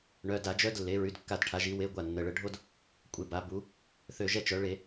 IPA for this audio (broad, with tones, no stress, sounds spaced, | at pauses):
ɳ œ˩˧˩ d a˧˩˧ d͡ʒ œ˦ d lː e˩˧ ɹ y˩˧˩ d kː a˧˩˧ d ʈʰ a˩˧ ʒ i˩˧ w e˨˥ ɡʷ a˩˧˩ nː ə˩˧˩ ɭ ə˧˩˧ ɖʱ o˦ d | kʷʼ e˧˩˧ b a˩˧ b u˩˧ | θ ø˧˩ ʒ ɛ˦ t͡ʃ œ˩˧ ɭ e˧˩˧